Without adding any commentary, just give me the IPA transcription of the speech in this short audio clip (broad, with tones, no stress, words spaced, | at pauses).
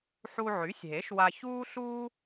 ħu˧ʕy˩˥sʲɦe˩˥ʃ wa˧çuː˥ɬuː˥